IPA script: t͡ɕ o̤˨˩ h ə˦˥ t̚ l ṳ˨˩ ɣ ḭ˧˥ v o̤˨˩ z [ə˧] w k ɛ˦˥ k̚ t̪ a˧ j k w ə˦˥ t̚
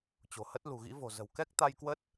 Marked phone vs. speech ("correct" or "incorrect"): incorrect